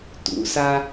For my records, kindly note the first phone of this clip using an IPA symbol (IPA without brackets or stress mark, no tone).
t